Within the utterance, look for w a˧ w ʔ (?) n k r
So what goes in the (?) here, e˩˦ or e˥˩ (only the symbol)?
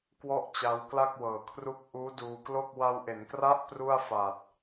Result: e˩˦